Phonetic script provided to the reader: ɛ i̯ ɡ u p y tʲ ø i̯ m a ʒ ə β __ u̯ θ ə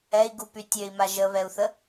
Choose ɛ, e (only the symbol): ɛ